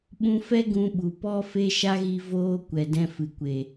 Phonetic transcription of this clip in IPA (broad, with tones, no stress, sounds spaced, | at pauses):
ɓ ũ˧ f ɛ˦ ɡ ũ˧ ɓ u˨ p ɔ˦ f e˦ ʃ a˦ ɣ i˧ v oː˧ kʷ ɛ˨ d ɛ̃˧ f ɨ˨ kʷ e˨